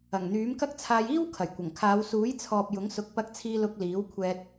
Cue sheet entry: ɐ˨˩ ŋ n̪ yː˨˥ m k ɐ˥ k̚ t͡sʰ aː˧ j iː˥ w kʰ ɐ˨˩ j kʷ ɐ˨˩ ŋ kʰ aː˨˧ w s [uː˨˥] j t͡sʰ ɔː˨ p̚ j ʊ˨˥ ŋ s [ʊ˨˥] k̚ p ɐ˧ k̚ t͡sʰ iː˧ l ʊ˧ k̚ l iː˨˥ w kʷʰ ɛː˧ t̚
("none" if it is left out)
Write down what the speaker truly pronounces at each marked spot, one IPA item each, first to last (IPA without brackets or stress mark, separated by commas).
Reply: uː˨˥, ʊ˨˥